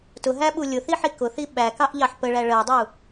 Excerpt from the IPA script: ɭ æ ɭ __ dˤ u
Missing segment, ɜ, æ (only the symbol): ɜ